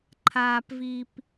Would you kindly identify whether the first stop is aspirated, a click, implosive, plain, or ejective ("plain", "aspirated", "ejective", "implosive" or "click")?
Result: click